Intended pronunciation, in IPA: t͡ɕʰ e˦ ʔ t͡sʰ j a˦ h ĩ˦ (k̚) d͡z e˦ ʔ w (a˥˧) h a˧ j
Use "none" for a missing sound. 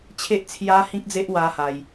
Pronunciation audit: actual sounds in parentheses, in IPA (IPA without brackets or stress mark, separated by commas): k̚, a˦